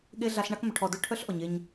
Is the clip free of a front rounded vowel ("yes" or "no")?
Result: no